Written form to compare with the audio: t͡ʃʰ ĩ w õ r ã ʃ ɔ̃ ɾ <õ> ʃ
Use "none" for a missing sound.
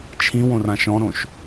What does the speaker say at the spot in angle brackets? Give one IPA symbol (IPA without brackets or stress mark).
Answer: õ